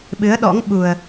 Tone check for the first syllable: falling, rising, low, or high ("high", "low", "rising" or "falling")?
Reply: rising